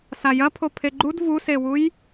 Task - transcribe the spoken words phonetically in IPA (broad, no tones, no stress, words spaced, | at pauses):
sajɐpʰo pʰeɡ͡ǃud vusewuj